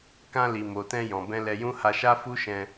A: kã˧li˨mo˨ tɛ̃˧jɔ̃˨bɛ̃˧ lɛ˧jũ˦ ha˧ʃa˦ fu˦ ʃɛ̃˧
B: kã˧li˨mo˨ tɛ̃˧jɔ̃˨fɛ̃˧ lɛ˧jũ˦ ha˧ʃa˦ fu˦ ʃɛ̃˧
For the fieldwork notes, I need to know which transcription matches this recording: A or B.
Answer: A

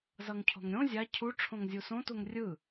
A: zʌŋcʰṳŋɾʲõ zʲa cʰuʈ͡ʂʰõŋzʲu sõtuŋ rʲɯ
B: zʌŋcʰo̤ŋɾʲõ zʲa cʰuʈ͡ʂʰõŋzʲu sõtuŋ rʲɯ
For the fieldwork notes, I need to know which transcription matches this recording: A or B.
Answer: B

